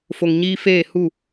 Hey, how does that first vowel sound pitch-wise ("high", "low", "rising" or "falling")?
low